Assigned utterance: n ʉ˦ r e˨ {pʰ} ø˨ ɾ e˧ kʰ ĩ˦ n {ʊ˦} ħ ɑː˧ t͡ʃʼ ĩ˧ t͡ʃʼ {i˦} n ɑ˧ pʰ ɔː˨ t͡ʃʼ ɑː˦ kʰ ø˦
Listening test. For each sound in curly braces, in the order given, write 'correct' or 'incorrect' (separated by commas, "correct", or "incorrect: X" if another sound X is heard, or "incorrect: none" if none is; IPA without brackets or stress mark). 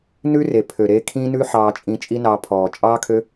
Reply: correct, incorrect: ʉ˦, correct